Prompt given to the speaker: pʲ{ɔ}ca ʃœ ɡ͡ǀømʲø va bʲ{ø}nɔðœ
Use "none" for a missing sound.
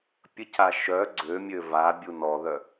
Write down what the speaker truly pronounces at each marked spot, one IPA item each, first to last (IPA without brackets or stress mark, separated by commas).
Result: ə, u